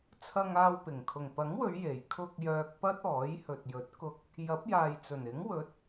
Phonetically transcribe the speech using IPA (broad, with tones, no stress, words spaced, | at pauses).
t͡sʰɐ˧ŋaː˧wpɪ˨˩ŋ kʰʊ˨˩ŋpɐ˨˥ŋwɵ˨˧ɥ je˨˩j kʰʊ˧k̚ jœː˧k̚pɐ˥t̚ɔː˨˥j hɵ˨t̚jɵ˨˥t̚kʊ˧k̚ | jɐ˨˥p̚jaː˨jt͡sɵ˨˩n ɪ˨˥ŋ wɵ˨˥t̚